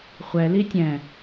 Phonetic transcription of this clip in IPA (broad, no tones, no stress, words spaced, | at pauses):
χʷɛ litʲɛ̃